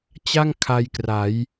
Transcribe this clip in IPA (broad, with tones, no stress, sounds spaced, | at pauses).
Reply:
t͡ɕ a˥˩ ŋ kʰ a˧ j k r a˩˦ j